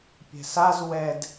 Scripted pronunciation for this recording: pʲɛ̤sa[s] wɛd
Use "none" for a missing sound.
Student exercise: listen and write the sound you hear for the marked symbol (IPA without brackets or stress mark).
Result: z